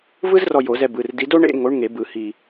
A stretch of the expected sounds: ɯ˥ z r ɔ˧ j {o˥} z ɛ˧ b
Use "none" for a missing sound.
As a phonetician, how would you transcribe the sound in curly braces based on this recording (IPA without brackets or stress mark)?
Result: o˨˩˦